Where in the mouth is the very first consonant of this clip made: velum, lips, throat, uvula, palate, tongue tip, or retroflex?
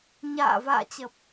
palate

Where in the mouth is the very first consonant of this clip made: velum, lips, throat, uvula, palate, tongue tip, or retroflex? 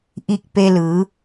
throat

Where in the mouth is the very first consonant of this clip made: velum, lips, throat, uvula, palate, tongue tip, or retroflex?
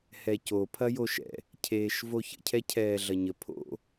throat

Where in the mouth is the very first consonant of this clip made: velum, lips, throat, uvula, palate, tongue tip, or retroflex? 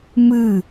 lips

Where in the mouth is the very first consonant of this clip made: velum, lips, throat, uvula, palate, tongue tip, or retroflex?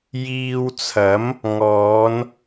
palate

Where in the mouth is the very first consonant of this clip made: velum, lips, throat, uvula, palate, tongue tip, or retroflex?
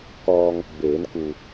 velum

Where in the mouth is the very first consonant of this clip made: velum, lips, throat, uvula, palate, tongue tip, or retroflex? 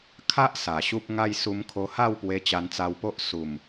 velum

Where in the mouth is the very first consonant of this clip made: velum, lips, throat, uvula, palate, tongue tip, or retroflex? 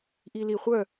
throat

